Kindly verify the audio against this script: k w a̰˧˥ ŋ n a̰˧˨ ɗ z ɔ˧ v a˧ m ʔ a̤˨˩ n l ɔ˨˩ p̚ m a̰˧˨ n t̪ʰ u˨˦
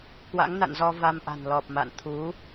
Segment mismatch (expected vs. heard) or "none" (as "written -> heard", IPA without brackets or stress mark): ɗ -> n